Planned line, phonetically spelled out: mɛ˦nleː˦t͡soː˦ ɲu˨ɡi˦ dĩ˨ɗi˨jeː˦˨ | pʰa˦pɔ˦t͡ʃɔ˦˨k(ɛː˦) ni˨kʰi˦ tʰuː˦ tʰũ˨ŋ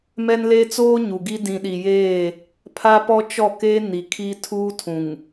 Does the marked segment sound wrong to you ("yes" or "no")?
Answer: yes